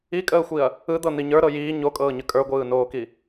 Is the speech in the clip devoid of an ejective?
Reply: no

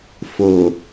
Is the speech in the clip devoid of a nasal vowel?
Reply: yes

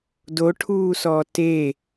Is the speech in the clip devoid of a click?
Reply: yes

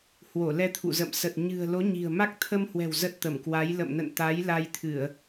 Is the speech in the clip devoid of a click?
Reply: yes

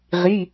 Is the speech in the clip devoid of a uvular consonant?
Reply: no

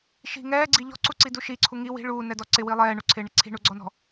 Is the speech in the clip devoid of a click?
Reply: no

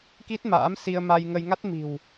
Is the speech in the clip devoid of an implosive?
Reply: yes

